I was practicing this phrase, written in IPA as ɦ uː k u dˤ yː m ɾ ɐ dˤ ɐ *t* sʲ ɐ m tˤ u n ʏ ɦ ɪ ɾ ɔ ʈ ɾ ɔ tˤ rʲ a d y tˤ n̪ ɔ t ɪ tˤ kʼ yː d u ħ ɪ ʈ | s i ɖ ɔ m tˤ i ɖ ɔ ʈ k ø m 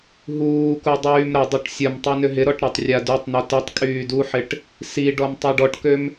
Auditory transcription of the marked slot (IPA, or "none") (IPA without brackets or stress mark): ʈ